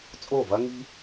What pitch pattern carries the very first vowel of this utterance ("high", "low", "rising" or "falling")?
falling